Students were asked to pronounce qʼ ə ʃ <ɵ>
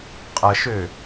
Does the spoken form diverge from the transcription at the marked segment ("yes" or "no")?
yes